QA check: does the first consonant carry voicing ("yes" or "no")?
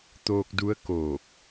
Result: no